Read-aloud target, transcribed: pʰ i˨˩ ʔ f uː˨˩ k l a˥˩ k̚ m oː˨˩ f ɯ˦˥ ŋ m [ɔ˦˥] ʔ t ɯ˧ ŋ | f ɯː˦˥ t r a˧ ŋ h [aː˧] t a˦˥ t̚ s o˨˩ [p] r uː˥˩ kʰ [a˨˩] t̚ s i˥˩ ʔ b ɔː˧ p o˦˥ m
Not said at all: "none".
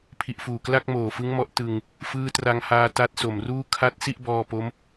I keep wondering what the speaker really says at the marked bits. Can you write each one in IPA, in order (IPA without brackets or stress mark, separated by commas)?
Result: ɔ˦˥, aː˧, m, a˦˥